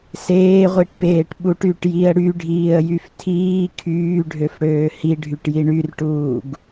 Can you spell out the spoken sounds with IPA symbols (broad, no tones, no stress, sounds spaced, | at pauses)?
s eː ʁʷ i ʈ p eː ʈ ɓ u ʈ y ʈ j i ə̯ ɽ y ɖʱ iː ə̯ j y f tʰ iː kʰ yː ɖʱ ø f ɽ øː h i ɖʱ y ʈ j i ɳ y r ʈ uː ɡ